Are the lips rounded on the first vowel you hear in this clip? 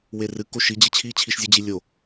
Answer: no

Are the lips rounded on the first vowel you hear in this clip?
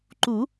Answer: yes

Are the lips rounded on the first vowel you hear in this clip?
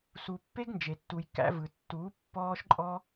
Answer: yes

